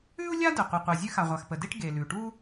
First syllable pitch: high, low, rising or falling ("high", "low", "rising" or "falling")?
high